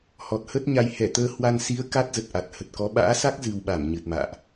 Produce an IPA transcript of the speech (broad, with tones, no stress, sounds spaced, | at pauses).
h ɔ˨˩ t̚ h ə˦˥ t̚ ɲ a˧ j h ɛ˧˩ t̪ əː˧ h w a˧ n s i˨˦ ə̯ k a˦˥ t̚ z ə˨˩ t̚ ʔ a˨˩ t̚ h ə˨˩ t̚ k ɔ˨˦ ɓ a̰ː˧˥ s a˦˥ k̚ z ɨ˧ w ɓ a˧˩ m ɲ ɨ˨˩ t̚ m a̰ː˧˨ ʔ